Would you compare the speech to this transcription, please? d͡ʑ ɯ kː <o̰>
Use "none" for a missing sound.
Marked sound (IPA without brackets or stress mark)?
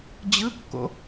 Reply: o̰